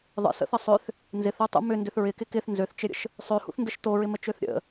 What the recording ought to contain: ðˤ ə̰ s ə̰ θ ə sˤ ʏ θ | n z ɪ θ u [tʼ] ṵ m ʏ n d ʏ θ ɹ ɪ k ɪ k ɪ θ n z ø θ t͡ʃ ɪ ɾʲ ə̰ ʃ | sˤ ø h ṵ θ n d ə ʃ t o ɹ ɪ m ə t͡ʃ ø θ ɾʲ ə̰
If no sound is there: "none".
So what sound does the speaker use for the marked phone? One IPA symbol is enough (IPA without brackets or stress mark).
tˤ